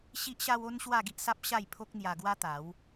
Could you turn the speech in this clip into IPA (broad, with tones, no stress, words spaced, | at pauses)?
ɕi˦ʔɕa˦w o˦n ɕwa˥˧ɡi˦ʔsa˦p̚ ɕa˥˧jpʰo˦k̚ n̪ja˧ɡwa˦t̪a˨˦w